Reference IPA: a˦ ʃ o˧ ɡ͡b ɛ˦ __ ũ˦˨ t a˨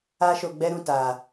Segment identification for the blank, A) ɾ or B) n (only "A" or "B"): A